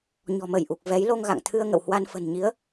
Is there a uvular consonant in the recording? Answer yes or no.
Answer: no